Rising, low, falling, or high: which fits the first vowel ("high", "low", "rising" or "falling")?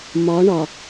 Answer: rising